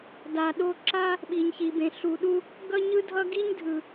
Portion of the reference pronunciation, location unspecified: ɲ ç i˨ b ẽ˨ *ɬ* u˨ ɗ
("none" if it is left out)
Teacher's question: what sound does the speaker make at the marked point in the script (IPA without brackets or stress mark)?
ɬ